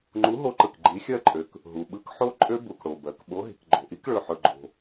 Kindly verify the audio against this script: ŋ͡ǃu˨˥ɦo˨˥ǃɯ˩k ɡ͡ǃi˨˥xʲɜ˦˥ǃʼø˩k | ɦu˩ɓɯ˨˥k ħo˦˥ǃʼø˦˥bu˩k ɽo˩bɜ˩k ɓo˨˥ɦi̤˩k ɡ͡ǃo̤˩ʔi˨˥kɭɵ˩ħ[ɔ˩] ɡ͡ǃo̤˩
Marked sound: incorrect: ɵ˩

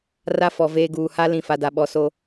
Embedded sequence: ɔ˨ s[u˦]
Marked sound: incorrect: o˦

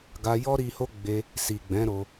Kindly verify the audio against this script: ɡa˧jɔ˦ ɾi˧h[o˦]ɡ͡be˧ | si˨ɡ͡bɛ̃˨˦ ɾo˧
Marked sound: correct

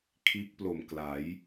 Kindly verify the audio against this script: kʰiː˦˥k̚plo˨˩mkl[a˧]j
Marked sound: incorrect: a˩˦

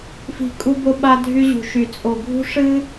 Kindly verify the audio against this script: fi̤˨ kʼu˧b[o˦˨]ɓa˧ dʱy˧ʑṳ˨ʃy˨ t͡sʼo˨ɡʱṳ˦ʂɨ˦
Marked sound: incorrect: o˧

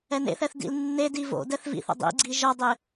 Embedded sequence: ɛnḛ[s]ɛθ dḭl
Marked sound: incorrect: θ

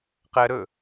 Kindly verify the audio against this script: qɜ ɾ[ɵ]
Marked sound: correct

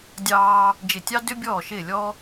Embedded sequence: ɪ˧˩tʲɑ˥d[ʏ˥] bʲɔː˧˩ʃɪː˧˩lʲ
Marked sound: correct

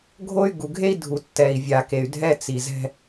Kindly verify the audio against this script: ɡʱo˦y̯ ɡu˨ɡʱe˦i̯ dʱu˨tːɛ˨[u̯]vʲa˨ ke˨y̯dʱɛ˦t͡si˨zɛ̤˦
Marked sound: incorrect: i̯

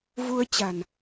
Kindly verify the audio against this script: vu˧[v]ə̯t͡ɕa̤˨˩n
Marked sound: incorrect: none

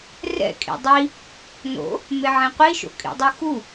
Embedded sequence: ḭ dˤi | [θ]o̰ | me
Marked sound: incorrect: n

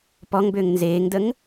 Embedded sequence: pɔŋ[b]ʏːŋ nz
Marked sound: correct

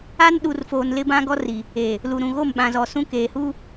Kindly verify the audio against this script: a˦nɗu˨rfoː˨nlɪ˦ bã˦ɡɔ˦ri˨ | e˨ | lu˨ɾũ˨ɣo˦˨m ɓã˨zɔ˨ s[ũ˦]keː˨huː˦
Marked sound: correct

